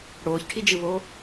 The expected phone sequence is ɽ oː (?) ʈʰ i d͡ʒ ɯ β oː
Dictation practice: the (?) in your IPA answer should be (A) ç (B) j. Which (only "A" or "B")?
A